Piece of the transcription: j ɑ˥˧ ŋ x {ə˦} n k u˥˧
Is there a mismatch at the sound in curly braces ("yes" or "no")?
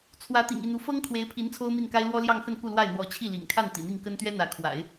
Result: yes